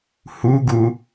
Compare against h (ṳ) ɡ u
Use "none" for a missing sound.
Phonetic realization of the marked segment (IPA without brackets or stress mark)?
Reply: u